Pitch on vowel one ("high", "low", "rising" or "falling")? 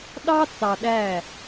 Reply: high